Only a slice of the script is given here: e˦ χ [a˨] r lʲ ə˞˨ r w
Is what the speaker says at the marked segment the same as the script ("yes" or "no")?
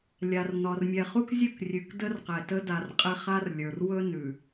no